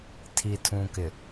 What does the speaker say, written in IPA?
tʰi˨tʰũ˨kɪ˨

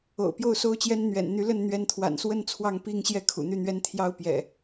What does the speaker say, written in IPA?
o̰˨˩ʊ̯pjo˥˨ʊ̯so˦ʊ̯t͡ɕjɛ˦n n̪ɥɛ̰˨˩n n̪y˨˦lə˥˨n n̪ɥɛ˨˦nt̪ʰwa̰˨˩nswə˥˨n t͡sʰwɑ˥˨ŋpi˥˨ŋɕjɛ˥˨ kʰṵ˨˩n̪y˥˨n̪ɥɛ˦n t̪ʰjɑ˦ʊ̯pjɛ̰˨˩

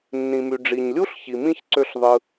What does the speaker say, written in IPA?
nːĩ˩my˩ ɖ͡ʐi˩ɲlʲu˥ɬçi˩mĩ˦ç ǀø˦ɬðˤɯ˨

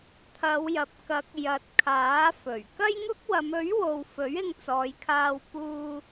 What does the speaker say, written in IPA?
t̪ʰɐ˨˧wjɐ˨p̚kɐ˨˥k̚ jɐ˨t̚ kʰaː˨˥fɵ˨˩ɥ kɐ˥jŋʊ˥k̚ wɐ˨˧mɵ˨˥ɥwo˨w fɵ˨˥ɥɪ˧ŋt͡sɔː˨˧jkʰaː˧w puː˥

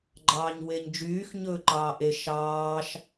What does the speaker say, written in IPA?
ɡ͡ǃɑːɲweɲd͡ʒyːx ɲɵːǃɑːʔe ʃɑːʃ

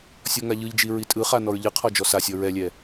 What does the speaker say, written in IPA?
sʲɔŋaʎɯʎd͡ʒi ɹitʼɯχa nɔɹʎɯqʰɔ d͡ʒɔsasʲɔ ɹɛlʲɛ

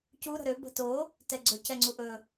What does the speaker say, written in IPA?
cu ɾə̤ɾø bə̤to | tɛɡ͡ǀɵ cɛŋ͡ǀuʔɵ

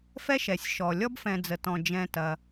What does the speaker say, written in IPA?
fɛ˥ʃɛ˩sʲ ʃɔ˩ lʲɔ˥bfɛ̃˨d͡zə˩tɔ̃˩ d͡ʒɛ̃˨tɐ˩

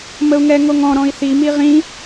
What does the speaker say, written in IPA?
məu̯ŋɛŋoŋɔ̃ ɾɔ̃i̯θi miʁĩ

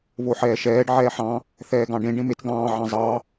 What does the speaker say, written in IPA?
βoħɛːʃɛːɖ ʕɛːħɑ̃ | θɛːɡɑ̃ɖẽ ɖẽmet ɡɑ̃ː ʕɑ̃zˤɑ

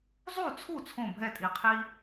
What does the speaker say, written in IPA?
zˤu˥˩t͡sʰu˥˩ t͡sʰõ˥˩bʱɛ˥˩tʼi˨˩qʰiː˦

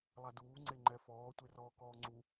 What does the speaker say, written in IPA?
lˠaduː ŋ͡ǀeŋ͡ǃɛfɔː tʷerɔːkɔːŋ͡ǀu

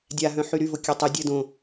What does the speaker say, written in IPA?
dʲaɦœ̃ħy ɾyvokʲœ tˤə dʲə dõ

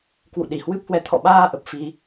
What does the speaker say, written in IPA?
kwṵ˧˨ɗi˧˩hwɨ˦˥p̚hwɛ˧ t̪ʰɔ̰˧˨ɓaː˧ ʔə˨˩p̚ fi˧

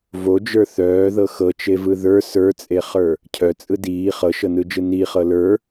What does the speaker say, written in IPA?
vod͡ʒə˞ θœːðɤ xɤt͡ʃevɯ ðə˞ sə˞t͡sʼeχə˞ | cʰœt͡sʼɯ diː χɤʃɤnɯd͡ʒɯ niχɤ lə˞

